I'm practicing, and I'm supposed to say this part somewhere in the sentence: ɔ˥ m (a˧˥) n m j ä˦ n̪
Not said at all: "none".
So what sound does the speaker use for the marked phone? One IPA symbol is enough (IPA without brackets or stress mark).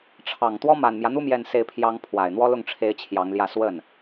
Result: a˨˩